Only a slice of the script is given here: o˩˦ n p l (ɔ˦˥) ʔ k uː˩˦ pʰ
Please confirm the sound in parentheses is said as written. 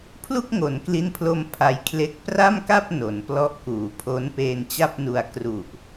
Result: yes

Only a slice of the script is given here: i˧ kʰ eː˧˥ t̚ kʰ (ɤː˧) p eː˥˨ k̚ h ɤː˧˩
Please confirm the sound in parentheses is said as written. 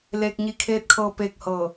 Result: yes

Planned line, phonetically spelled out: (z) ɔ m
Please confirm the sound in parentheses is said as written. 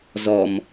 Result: yes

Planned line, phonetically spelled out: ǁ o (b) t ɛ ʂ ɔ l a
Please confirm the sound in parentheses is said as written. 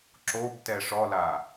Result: yes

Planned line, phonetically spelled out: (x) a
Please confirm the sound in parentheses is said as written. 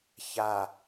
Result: no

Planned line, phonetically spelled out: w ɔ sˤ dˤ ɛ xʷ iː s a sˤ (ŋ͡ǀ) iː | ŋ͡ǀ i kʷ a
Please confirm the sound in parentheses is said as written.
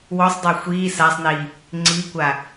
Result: no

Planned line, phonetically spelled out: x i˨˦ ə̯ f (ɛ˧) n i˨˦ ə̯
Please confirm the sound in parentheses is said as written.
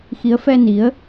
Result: yes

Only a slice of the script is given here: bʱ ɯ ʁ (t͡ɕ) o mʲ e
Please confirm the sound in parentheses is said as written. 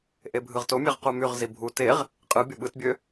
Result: no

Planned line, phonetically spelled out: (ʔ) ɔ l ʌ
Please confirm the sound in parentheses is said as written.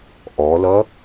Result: yes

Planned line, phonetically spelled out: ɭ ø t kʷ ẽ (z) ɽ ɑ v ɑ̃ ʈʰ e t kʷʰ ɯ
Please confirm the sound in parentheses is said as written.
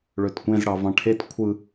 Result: yes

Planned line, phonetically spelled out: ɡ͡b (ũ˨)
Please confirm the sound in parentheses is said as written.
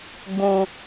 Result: yes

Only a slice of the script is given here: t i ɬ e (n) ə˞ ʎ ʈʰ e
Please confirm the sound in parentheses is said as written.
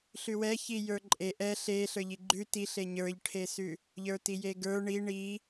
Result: no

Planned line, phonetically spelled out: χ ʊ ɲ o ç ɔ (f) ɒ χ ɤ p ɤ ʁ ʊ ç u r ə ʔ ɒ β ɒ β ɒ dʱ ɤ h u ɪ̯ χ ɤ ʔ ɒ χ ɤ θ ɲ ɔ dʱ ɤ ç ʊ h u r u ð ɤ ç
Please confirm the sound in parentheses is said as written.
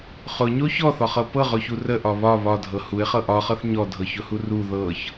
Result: no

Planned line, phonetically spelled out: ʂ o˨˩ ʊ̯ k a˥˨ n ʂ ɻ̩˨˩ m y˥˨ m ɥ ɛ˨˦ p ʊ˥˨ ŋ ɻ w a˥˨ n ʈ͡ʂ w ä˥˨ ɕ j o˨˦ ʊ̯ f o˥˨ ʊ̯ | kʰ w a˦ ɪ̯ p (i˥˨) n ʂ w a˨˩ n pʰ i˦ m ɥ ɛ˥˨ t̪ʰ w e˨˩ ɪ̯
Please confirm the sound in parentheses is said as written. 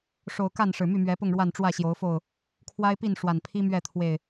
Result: yes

